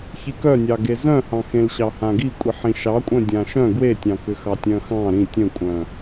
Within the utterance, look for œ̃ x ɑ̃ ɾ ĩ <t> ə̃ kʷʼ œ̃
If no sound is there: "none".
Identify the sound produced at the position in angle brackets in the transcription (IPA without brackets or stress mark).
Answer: tʲ